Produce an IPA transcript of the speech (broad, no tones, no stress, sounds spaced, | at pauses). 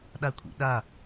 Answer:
ɗ a kʷʰ ḭ ɗ a